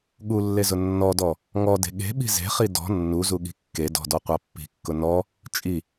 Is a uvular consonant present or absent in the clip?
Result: present